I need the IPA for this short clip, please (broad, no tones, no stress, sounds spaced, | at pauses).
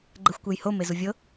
ɡ͡ǃ ɛ xʷ kʷ e j h o m e z u vʲ ɤ